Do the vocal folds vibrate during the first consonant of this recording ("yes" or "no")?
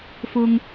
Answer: no